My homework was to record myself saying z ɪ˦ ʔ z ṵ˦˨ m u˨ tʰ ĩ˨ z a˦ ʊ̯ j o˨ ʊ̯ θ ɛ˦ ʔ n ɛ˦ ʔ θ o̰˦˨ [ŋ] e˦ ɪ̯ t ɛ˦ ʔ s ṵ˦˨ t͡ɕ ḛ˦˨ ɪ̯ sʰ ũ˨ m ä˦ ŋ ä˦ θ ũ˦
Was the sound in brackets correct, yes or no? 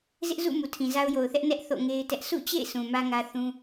yes